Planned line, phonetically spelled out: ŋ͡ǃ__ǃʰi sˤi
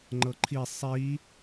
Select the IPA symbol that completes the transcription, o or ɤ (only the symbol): ɤ